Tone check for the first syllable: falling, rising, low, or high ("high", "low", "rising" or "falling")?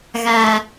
low